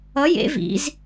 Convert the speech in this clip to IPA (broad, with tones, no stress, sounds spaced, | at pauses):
ʌ˧˥ j ḛ˧˥ v ḭ˧˥ z